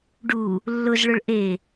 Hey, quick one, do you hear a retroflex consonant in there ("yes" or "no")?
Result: yes